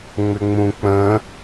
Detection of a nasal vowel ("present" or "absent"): present